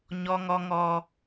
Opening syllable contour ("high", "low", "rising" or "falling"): high